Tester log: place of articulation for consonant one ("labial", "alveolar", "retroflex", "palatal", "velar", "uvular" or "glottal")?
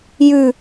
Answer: palatal